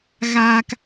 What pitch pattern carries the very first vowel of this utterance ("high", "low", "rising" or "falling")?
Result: low